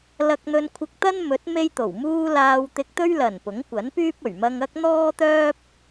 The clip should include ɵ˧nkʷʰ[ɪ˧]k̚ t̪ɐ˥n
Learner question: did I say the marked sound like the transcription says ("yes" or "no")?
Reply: yes